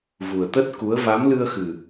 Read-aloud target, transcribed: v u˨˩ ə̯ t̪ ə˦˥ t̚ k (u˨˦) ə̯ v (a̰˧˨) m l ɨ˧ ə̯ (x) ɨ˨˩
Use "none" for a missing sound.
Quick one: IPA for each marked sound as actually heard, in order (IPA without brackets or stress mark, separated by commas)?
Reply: u˨˦, a˨˦, x